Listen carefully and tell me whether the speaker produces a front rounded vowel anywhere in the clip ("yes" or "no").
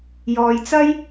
no